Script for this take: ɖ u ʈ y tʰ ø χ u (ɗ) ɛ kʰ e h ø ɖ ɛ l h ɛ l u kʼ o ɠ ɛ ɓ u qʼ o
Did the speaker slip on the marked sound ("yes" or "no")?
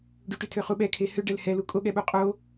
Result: yes